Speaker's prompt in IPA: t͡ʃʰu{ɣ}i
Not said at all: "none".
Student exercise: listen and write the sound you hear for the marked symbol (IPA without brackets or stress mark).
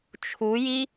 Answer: j